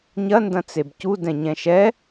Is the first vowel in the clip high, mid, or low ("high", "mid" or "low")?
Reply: low